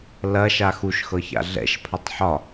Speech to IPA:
l ɐ ʃ a x u ʃ x ɤ ç a̰ ɮ ɛ̰ ʃ pʰ ɐ tˤ ħ ɒ

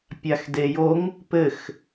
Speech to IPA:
pʲ a x d e j o ŋ | p ɘ x

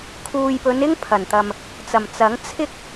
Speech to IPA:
kʰ uː˨ j p ɵ˨˧ n ɪ˥ ŋ pʰ ɐ˨˩ n t̪ ɐ˨ m | t͡s ɐ˨˩ m t͡s ɐ˨˥ ŋ t͡sʰ ɪ˥ k̚

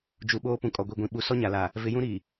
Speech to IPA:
d͡ʒ u˨ ɓ oː˦ p ũ˨ kʼ ɔ˨ ɡʷ i˨ ɡʷ ĩ˨ ɓ u˨ s ɔ˦ ɲ a˨ l aː˨ | v ɪ˨˦ j ũ˦ ɾ iː˨

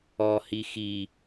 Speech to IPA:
ɔ h i x i

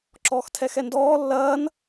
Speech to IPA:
ǁ ɔː x tʰ ɛ x ɛ n d ɔː lː ɐː n

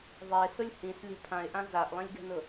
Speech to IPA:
ðˤ e s ʊ lʲ h ĩ s lʲ ɛ̤ pʰ ã ɪ̯ ʔ ã z a ʔ lˠ ĩ lʲ ɡ ɛ̤ n ʊ

